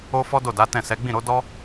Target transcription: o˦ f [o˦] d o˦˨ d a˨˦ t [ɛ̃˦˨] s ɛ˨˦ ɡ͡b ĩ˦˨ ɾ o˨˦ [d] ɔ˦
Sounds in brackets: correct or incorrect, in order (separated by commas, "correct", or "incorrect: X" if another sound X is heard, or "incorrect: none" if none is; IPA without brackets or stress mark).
incorrect: ɔ˦, correct, correct